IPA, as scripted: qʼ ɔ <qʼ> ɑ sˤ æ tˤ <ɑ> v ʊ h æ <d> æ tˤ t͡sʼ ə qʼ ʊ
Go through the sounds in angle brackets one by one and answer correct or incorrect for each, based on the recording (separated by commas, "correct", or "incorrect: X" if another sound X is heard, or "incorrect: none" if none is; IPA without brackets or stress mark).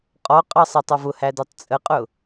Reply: correct, incorrect: ɒ, correct